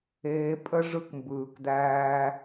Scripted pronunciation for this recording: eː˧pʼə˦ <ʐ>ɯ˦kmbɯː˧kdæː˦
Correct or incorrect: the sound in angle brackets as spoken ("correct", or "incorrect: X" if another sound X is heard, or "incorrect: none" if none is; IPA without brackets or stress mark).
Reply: correct